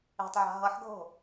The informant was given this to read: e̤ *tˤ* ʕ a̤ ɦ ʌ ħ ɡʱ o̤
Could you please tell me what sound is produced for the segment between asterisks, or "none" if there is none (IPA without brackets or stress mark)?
tˤ